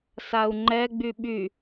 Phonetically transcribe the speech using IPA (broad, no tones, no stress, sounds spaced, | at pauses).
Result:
s a u̯ ŋ͡ǃ ɛ ɡ͡b y ɓ y